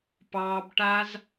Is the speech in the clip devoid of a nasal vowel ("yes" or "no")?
yes